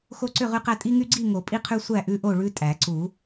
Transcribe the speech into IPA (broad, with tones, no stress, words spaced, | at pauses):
xo˦ǀʏ˥˨ʁʉ˦qæ˦ tʼi˦ŋy˦ɡ͡ǀi˥˨ŋo˨˩˦ pʼi˦qʰʉ˦sʷæ˥˨ ʔʉ˦ʔo˥˨ɭʉ˦ tʼæ˨˩˦ ǀu˨˩˦